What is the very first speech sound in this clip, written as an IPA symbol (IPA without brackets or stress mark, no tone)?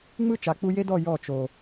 ŋ͡m